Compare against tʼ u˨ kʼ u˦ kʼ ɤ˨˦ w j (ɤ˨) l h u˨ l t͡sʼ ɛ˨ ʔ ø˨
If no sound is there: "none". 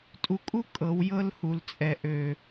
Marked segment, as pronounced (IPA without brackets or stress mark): ɤ˦